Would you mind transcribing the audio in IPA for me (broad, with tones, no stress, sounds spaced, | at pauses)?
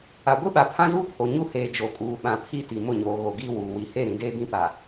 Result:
a˨ ɡʷ i˦ ɓ a˨ pʰ ã˦ z uː˦ pʰ o˨ ɲ u˦ h eː˨ d͡ʒ o˨ kʼ uː˨ ɓ ã˨ pʰ i˦ t i˨ m ʊ˦˨ ɲ oː˨ ɣ o˨ ɡ iː˦ w uː˨ w i˨ h e˦˨ ɾ ĩ˨ d eː˦ b ĩ˦ p a˨